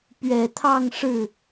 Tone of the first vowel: low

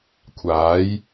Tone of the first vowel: rising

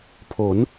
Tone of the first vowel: rising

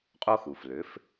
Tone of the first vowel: high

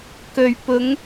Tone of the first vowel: low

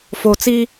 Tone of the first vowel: low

